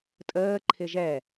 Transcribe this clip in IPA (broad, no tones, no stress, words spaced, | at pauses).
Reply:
tʼəː ǃʰɪʒɛ